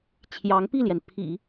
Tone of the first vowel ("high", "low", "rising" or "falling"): rising